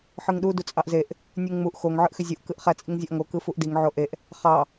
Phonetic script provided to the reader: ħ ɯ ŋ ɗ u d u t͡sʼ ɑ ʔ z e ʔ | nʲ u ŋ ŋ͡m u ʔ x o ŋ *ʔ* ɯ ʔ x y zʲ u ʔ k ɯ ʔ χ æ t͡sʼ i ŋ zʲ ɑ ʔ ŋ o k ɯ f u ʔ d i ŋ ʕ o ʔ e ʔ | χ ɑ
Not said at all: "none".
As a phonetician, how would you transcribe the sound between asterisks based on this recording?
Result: ʕ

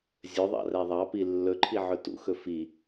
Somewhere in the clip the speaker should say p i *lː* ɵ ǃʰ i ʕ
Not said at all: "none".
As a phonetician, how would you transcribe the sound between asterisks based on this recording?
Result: lː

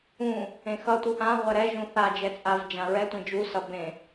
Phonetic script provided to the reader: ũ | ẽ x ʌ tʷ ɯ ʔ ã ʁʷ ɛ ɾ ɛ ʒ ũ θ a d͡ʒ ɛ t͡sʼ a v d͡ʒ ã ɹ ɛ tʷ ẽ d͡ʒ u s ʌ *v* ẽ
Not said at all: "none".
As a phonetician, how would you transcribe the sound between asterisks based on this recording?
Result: b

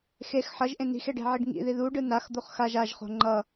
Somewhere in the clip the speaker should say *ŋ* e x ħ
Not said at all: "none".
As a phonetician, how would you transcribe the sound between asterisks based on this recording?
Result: x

